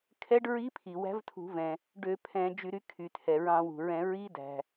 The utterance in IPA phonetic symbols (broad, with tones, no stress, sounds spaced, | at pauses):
kʰ ɛ˧˥ ɖ ɹ i˧˥ pʰ i˩ w æ̤˧˥ v tʰ ṳ˧˩˧ v ɛ̃˩ | ɖ ø˧˩˧ pʰ ɛ̃˧˩˧ d͡ʒ y˧˩˧ ɾ y˩˥ kʰ y˩ tʰ ɛ˩ ɹ ɑ̃˧˩˧ w ṳ˩ ɹ ɛ̃˧˩˧ ɹ i˧˥ d æ̤˩